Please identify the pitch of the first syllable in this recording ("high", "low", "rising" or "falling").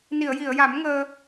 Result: low